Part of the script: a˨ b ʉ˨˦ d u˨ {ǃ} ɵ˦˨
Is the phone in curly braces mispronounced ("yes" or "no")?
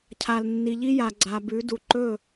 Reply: no